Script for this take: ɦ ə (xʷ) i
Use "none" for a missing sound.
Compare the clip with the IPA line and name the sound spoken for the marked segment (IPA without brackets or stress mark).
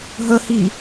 h